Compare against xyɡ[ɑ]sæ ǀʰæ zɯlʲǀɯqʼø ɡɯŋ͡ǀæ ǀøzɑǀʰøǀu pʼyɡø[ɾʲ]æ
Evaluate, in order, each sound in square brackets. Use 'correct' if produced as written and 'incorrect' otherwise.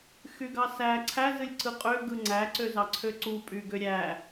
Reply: correct, correct

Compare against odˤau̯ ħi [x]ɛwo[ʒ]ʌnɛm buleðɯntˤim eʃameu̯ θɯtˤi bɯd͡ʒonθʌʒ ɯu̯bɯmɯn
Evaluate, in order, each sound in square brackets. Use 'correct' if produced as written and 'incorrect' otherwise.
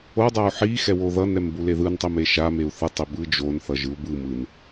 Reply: correct, incorrect

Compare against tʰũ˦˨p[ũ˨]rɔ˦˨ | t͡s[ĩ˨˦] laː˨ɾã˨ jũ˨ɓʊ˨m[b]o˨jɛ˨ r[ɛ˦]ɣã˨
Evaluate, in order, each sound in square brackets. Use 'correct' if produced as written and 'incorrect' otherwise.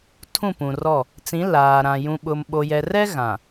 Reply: correct, correct, incorrect, correct

